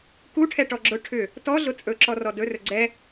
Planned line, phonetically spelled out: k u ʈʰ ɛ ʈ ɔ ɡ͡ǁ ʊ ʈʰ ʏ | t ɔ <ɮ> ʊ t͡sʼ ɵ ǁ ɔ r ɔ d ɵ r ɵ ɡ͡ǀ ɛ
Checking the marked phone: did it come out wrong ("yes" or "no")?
no